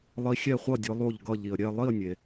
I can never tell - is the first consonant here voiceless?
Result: no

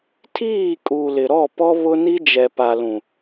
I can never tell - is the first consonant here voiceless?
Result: yes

